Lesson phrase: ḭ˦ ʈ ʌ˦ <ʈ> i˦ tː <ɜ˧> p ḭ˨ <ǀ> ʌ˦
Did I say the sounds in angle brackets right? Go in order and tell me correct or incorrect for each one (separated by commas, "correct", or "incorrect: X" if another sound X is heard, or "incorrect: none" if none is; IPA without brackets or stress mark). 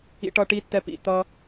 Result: correct, incorrect: ɛ˧, incorrect: t̪